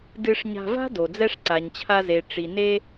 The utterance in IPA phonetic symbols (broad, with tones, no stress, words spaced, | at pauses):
dɨ˧ʂɲa̤˧va̤˥ do˩d͡zɛ˥ʂ ǀa˩ɲt͡ɕʰa˧ze˩ ʈ͡ʂi˩ ne˥